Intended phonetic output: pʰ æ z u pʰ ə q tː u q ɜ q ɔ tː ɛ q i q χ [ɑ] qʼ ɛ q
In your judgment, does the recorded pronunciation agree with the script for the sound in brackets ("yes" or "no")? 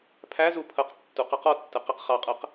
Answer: yes